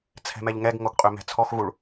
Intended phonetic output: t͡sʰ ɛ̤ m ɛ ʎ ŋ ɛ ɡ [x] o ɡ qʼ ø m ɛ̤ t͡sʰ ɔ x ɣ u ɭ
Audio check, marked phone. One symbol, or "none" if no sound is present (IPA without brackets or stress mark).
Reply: ŋ